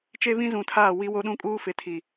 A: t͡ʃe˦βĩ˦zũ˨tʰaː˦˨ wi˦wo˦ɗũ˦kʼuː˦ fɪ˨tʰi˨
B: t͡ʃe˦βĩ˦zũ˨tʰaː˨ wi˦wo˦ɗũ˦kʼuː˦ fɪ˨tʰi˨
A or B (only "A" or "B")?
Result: A